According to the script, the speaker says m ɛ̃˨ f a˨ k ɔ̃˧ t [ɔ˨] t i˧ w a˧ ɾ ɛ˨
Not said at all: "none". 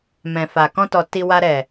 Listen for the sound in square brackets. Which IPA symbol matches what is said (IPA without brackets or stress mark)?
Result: ɔ˨